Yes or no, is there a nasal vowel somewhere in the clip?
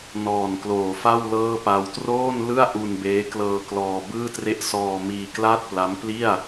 no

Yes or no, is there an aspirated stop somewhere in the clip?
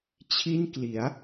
yes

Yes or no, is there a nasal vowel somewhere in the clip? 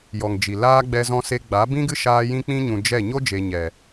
yes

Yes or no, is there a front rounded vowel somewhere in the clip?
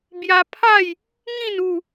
no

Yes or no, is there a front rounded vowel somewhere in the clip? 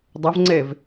no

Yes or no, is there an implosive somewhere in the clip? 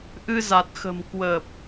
no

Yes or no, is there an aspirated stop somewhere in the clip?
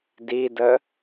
no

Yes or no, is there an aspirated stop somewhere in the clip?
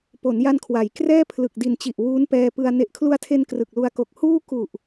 yes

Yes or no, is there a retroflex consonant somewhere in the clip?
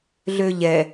no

